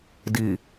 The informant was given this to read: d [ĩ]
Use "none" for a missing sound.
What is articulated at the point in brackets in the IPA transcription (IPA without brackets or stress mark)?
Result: i